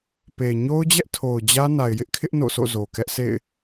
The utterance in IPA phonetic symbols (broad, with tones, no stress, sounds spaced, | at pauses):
p e˨ ɲ o˦ ʊ̯ d͡ʑ ɛ˦ ʔ tʰ o˨ ʊ̯ d͡ʑ ä˦ n a˨ ɪ̯ j ɪ˦ ʔ kʰ ɪ˦ ʔ n o̰˦˨ sʰ o̰˦˨ z o˨ k ɛ˦ ʔ s ḛ˦˨ ɪ̯